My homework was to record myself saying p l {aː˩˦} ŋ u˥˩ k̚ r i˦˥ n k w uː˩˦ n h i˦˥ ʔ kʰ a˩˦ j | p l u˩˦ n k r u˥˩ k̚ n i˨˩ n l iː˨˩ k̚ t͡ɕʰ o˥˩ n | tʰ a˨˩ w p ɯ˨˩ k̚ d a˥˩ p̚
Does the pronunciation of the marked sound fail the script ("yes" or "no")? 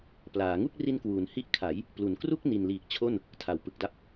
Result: no